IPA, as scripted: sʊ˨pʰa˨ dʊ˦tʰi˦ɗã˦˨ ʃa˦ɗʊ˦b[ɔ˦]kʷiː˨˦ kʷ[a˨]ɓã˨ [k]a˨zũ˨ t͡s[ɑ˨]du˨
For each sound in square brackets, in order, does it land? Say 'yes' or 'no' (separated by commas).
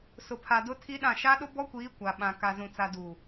yes, yes, yes, no